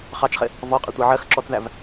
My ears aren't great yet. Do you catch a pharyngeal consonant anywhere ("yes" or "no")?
yes